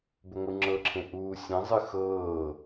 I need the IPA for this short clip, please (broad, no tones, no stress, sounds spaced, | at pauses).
b ʏ ŋʷ ɨ ŋ͡ǁ ɤ ǁʰ ẽ ʔ uː sʲ ẽ zˤ ɨ x ɤː